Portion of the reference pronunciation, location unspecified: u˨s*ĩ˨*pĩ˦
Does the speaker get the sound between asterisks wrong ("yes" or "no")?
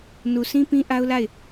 yes